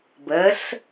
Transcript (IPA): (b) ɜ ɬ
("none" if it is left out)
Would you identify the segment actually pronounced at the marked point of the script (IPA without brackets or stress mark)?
b